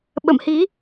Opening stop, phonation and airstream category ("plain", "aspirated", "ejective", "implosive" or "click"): implosive